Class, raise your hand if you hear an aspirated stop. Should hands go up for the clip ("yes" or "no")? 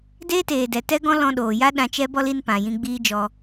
no